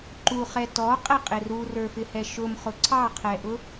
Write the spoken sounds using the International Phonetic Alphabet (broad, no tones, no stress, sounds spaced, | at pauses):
ǃ u χ ɛ t ɔ qʼ ɛ qʼ ɪ r u r ə˞ f ɪ h ɛ ʃ ʊ m χ ʊ ǀʰ ɑ qʰ ɛ ʔ ʊ